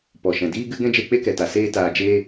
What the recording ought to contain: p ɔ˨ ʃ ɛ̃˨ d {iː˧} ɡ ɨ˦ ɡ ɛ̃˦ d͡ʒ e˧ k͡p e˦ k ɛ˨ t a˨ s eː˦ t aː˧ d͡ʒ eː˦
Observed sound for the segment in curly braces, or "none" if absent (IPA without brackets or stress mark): iː˦